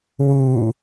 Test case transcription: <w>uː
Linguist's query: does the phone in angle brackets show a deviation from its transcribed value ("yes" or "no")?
no